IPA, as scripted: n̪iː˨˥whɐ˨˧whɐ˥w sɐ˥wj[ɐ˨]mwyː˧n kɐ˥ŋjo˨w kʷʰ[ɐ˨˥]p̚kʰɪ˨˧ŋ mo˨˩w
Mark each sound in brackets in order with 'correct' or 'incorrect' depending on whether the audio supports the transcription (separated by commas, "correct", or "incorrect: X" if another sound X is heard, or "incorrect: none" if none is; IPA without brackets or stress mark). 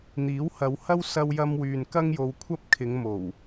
incorrect: ɐ˥, incorrect: ɐ˥